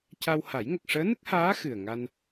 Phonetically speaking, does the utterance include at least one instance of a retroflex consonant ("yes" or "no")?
yes